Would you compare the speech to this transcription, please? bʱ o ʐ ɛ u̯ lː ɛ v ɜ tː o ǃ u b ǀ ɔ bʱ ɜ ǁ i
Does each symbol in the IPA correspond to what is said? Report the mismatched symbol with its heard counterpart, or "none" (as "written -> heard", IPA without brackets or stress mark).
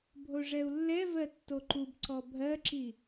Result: none